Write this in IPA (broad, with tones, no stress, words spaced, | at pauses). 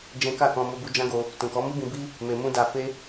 d͡ʒɛ̃˦ ka˦˨ kɔ̃˧ mo˦bu˦ d͡ʒã˦ɡo˧ | tũ˨kɔ˨˦mu˦bĩ˧ bi˦ | me˧mũ˦ da˧fe˦